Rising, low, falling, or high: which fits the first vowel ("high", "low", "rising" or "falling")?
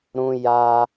high